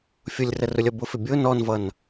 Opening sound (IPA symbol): fʲ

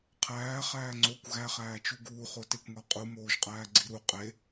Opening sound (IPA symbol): qʰ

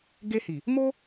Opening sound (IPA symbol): ɡ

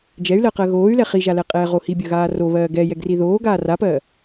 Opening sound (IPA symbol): d͡ʒ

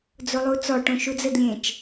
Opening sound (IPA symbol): d͡z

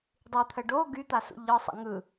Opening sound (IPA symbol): dˤ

